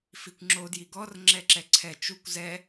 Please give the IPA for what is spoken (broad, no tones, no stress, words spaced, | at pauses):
fikʷŋ͡ǁo djiɡɔr ŋ͡ǁɛǁɛǀʰɛ t͡ʃukʷ zɛ